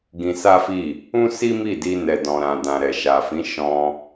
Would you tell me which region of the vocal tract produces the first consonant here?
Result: velum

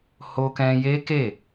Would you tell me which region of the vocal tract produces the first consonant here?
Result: throat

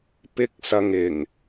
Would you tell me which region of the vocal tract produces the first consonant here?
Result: lips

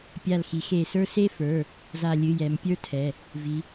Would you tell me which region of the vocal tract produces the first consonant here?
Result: lips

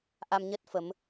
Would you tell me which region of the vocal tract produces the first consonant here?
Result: throat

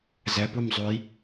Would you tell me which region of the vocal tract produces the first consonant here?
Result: tongue tip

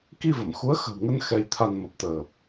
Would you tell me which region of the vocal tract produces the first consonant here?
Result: velum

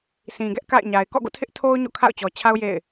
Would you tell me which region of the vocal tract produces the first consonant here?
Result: tongue tip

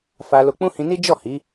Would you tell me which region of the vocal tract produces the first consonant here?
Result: lips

